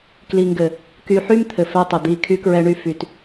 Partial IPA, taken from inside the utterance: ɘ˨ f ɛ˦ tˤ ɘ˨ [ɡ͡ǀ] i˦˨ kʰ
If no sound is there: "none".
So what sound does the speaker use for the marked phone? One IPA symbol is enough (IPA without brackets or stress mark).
d̪